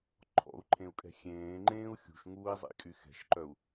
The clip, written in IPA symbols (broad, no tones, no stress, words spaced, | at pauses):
ǃʰɔ̰u̯ǃʰẽu̯kʼɛ̤ xʲẽːŋ͡ǃẽːu̯ xʲṳʃŋuːi̯zˤḭkʼy xɛ̤ʃǃœu̯